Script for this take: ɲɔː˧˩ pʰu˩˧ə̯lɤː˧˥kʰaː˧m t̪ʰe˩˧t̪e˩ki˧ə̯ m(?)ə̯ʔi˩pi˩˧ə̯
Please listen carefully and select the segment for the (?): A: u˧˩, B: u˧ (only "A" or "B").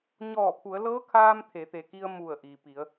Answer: A